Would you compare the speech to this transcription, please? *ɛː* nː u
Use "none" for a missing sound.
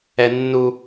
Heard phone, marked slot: ɛ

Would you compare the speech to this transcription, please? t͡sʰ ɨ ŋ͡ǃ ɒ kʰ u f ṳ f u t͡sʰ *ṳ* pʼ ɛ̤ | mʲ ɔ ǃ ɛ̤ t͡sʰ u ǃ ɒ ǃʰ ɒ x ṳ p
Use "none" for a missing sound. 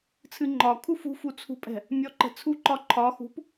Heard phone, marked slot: ṳ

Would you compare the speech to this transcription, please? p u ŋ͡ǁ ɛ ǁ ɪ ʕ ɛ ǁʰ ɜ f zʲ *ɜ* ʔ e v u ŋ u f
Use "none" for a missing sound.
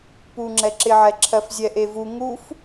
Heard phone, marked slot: ɛ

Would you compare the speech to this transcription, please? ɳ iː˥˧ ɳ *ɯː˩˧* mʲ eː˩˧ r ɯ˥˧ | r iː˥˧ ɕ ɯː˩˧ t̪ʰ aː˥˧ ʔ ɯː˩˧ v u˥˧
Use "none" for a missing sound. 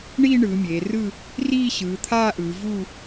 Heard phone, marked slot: ɯː˩˧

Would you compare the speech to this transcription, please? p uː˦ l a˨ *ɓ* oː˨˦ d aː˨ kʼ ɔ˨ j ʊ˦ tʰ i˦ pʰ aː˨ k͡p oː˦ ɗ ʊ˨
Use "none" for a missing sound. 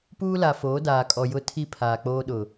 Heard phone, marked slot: f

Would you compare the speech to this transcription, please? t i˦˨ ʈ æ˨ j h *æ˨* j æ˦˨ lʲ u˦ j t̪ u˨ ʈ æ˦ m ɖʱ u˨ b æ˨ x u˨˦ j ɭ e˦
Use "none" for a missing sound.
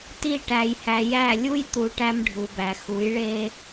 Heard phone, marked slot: æ˨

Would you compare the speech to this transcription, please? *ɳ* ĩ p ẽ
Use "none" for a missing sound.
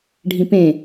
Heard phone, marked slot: ɖʱ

